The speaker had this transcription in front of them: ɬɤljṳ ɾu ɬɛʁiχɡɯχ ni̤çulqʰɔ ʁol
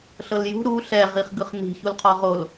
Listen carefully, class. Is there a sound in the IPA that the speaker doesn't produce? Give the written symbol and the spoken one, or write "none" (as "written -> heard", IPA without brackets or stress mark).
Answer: none